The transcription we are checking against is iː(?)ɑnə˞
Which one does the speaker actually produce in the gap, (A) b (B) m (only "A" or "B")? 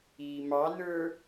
B